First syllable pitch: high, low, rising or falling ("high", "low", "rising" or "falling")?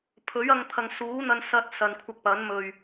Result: rising